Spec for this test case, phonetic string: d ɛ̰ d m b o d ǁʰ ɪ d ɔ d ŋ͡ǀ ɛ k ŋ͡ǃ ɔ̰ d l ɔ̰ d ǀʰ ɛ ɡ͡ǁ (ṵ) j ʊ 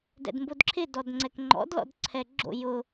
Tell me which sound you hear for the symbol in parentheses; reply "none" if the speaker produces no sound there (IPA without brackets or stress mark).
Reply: o̰